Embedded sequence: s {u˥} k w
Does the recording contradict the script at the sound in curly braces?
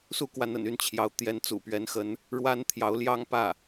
no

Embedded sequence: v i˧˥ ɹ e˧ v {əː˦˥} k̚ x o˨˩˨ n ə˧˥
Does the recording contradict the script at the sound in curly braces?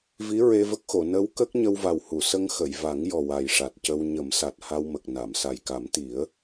yes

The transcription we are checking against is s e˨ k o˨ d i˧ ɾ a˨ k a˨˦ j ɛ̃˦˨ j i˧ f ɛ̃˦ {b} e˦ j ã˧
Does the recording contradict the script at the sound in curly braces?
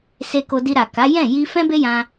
no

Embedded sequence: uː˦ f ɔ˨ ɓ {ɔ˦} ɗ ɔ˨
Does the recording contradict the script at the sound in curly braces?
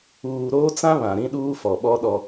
no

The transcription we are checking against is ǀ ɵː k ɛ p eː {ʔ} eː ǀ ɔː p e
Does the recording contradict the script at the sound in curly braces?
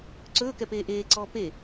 no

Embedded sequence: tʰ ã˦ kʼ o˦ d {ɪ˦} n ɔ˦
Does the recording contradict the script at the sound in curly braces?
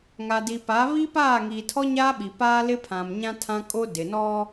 yes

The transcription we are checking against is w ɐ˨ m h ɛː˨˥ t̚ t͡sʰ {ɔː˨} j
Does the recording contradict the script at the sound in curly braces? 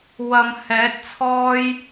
yes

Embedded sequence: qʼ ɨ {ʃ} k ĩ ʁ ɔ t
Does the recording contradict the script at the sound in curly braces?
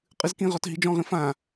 yes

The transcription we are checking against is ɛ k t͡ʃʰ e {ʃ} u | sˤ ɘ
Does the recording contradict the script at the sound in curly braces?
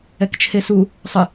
yes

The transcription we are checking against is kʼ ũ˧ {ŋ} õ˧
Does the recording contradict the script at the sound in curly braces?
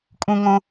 no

